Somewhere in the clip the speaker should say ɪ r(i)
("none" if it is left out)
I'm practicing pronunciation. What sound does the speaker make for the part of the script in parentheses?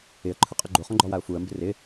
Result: ɪ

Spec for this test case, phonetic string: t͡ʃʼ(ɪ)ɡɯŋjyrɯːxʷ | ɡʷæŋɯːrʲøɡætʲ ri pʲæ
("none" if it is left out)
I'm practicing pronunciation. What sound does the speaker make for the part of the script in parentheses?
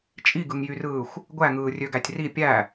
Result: i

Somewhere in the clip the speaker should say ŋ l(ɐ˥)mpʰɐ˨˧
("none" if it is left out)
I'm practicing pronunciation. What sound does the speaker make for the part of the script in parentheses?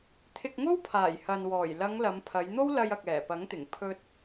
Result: ɐ˨˧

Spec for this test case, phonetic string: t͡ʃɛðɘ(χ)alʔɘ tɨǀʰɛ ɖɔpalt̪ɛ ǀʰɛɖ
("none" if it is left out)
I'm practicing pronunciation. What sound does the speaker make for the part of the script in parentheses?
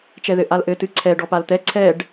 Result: ʔ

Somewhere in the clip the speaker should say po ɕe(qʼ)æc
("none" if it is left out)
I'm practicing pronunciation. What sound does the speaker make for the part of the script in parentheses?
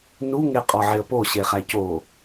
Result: χ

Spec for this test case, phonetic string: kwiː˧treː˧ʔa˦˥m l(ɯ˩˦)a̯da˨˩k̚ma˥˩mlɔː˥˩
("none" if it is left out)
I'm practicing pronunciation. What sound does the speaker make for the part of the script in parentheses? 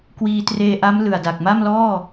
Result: ɯ˨˩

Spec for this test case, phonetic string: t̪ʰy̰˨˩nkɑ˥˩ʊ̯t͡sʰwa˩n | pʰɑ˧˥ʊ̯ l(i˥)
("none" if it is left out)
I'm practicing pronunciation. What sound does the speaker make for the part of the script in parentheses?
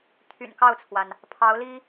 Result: i˥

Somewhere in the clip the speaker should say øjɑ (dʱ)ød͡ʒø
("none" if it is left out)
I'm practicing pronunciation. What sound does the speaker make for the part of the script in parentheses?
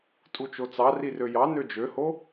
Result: n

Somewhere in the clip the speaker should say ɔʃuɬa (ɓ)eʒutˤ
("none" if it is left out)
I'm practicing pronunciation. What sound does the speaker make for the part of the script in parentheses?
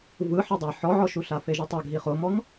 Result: f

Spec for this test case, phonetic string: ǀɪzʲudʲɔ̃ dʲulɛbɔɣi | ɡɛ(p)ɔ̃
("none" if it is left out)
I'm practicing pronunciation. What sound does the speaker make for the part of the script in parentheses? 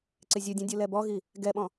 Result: ɓ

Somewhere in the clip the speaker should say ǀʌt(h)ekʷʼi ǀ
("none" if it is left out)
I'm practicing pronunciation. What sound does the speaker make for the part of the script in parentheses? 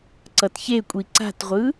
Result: ç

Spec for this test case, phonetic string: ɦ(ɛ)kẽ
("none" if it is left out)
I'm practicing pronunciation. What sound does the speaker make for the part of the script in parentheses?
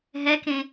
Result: ɛ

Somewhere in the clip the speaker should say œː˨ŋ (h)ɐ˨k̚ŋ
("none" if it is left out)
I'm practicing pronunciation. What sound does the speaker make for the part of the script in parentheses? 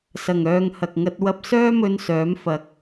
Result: h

